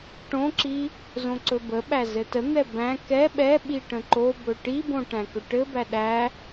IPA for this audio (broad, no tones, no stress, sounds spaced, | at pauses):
ʈ õ ǁ i | z õ ǀ ɵ b ə ɓ æ z ɘ t ə n̪ ɛ b æ̃ k ɛ ɓ ɛ ɓ i ʈ ə̃ ǃ o b ɵ ʈ i b õ ʈ æ̃ k ɵ ʈ ɘ b æ ɗ æ